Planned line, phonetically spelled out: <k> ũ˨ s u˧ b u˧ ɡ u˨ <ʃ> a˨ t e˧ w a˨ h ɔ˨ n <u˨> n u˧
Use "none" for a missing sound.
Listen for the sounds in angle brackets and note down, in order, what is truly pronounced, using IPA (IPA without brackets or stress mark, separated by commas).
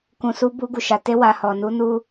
k, ʃ, u˨˦